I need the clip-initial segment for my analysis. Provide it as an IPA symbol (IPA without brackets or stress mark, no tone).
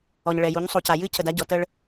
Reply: ɔ